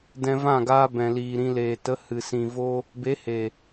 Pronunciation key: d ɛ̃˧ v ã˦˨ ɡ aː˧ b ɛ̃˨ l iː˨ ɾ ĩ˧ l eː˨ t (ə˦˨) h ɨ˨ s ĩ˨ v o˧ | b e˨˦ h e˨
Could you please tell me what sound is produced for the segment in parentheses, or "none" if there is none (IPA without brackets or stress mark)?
ə˨˦